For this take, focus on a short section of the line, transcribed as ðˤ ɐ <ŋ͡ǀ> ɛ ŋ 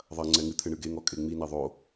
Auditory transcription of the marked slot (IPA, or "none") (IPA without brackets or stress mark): ŋ͡ǀ